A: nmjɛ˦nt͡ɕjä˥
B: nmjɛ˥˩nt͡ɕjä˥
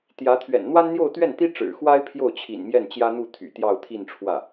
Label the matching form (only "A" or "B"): B